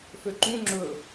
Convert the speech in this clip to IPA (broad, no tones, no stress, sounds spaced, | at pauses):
f ø ǃ ũ ŋ͡ǁ ɵ